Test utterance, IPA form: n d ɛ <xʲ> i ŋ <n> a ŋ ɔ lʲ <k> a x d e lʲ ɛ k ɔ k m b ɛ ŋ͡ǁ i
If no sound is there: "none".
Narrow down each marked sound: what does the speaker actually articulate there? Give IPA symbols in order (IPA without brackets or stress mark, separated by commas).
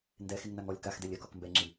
x, n, k